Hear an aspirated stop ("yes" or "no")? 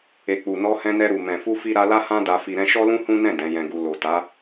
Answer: no